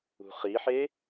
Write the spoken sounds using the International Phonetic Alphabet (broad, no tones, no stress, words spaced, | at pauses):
ṳχiħe